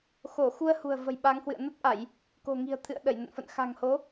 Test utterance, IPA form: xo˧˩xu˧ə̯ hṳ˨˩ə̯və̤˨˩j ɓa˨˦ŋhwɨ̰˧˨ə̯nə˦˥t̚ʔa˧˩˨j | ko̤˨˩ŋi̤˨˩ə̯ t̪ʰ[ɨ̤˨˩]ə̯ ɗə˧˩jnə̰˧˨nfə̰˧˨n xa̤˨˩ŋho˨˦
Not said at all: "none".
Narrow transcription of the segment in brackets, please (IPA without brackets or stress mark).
ɨ̰˧˨